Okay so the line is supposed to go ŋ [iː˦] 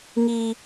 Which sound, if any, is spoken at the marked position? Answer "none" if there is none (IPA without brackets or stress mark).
iː˦